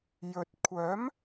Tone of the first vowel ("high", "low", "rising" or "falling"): low